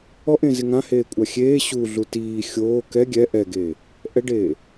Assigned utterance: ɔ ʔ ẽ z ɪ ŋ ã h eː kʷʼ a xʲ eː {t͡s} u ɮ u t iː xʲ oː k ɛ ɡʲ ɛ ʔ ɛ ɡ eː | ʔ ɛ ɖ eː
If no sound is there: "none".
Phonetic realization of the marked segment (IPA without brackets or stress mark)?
ɕ